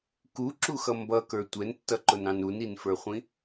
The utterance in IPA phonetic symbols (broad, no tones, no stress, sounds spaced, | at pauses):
k u ǁ u x ʌ m b ʌ k ə˞ tʷ ɛ n tː ʌ ǃ ʊ n ɑ̃ n u n i n f ə˞ χʷ ĩ